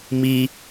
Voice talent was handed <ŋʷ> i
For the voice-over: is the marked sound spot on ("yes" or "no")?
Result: no